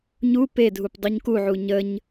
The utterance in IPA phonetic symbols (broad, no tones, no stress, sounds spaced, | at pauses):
ɲ u p e dʱ u p dˤ u ɲ k u ʕ u ɲ ə ɲ